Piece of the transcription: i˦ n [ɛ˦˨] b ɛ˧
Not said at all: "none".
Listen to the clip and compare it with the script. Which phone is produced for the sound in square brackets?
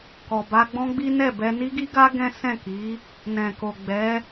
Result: ɛ˦˨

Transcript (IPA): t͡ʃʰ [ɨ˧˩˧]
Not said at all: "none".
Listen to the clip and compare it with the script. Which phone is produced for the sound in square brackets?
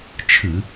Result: ɨ˧˩˧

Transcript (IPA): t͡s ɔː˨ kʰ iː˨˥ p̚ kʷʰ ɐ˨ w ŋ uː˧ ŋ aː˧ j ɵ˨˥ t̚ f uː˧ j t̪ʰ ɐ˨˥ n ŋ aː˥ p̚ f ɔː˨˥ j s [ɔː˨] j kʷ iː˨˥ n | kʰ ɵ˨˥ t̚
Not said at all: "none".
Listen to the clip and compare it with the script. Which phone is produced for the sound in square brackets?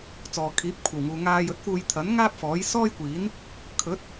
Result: ɔː˥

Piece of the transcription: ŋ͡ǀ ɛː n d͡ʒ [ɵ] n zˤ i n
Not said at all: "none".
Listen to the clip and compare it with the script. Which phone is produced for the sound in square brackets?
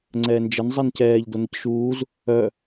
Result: ə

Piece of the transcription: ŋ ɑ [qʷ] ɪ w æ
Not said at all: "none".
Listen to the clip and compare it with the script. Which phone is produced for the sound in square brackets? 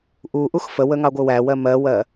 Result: ɡʷ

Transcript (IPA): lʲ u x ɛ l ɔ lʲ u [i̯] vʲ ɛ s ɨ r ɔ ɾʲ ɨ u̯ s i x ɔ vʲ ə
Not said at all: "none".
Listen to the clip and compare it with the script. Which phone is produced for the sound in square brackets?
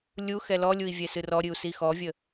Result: i̯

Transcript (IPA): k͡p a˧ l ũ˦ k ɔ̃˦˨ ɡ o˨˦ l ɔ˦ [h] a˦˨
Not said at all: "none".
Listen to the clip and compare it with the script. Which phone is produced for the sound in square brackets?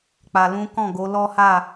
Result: h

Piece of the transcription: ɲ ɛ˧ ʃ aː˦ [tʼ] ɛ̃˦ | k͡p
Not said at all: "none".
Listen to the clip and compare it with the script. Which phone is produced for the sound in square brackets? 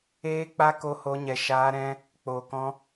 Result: ɾ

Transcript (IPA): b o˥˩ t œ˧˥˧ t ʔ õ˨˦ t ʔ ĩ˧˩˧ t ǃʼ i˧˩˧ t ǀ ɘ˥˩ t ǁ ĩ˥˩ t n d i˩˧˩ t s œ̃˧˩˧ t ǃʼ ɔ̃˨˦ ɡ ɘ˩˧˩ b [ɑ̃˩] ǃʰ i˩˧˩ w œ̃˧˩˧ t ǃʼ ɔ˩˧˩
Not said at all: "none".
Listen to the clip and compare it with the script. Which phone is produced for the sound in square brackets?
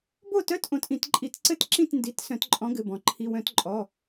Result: ɔ̃˩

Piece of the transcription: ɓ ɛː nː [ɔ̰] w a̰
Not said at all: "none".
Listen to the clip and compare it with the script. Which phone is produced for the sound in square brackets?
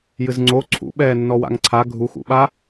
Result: ɔ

